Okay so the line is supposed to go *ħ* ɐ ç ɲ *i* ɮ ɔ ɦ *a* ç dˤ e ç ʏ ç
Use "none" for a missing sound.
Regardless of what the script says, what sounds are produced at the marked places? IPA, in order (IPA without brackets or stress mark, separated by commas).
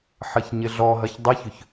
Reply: ħ, ɪ, ɐ